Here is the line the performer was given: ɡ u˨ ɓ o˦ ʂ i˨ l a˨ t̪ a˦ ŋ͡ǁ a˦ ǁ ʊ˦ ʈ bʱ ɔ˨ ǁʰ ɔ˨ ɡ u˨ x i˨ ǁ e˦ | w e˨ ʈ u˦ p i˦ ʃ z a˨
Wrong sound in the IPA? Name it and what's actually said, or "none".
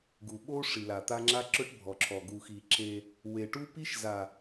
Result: none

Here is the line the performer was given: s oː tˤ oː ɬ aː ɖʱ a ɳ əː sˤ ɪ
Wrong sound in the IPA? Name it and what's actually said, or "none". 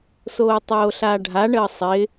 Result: none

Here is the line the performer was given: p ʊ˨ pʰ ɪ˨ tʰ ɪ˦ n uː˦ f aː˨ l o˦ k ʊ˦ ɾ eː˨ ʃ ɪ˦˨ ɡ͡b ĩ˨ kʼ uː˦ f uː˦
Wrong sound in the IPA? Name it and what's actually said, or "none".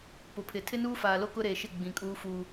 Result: none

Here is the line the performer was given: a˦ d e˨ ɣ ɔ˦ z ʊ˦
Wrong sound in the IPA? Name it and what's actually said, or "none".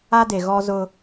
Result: none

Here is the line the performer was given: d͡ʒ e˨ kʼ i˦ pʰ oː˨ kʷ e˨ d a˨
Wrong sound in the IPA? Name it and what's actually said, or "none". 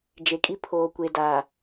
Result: none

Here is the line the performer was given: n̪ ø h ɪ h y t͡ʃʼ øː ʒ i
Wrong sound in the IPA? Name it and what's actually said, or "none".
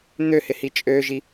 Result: y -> i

